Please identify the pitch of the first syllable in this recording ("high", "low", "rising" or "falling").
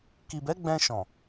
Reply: low